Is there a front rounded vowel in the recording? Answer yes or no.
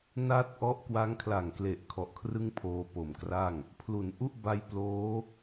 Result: no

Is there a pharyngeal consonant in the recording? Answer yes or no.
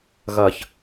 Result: no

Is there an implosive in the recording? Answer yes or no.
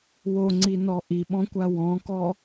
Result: yes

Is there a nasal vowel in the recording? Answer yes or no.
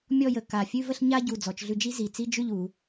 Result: no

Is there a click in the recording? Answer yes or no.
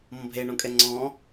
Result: yes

